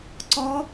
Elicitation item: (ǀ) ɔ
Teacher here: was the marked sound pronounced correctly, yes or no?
yes